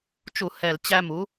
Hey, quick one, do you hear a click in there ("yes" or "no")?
no